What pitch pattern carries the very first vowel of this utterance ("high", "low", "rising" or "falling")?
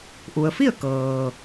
low